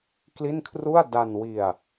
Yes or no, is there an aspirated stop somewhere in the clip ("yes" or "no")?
yes